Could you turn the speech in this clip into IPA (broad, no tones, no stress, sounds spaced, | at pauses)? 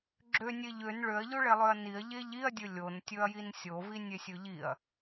ɡ͡ǁ ø nʲ e ʎ ø n ɭ ø ɐ̯ ʎ o ɭ e lˠ ø ɐ̯ n i ɐ̯ ʎ e ʎ i ɐ̯ dʲ ɵ lʲ o n tʲ ɵ ɐ̯ j i n sʲ o v i nʲ e sʲ ɵ ʎ i ɐ̯